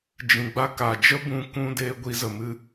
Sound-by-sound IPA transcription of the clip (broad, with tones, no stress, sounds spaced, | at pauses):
d͡ʒ ĩ˨ ɡ͡b a˦ k a˨ d͡ʒ ə˦ b ũ˧ k ũ˧ d eː˦ ɡʷ i˧ z ə˨ m ɨ˦